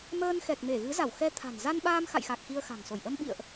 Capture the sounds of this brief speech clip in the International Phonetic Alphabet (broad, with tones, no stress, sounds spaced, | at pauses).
m əː˧ n x ɛ˨˩ k̚ m e˧˩ ɣ ɨ˨˦ z a˧˩ w x ɛ˧ t̪ʰ a̤˨˩ n z a˧ n ɓ aː˧ m x a̰˧˨ j x a˨˩ k̚ x i˧ ə̯ x a̤˨˩ ŋ s o˧˩ j ʔ ə˧ m ɓ ḭ˧˨ ə̯ ʔ